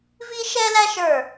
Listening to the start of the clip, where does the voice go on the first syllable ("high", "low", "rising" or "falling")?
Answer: high